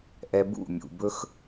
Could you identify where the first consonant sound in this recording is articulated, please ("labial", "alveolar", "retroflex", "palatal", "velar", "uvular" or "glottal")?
glottal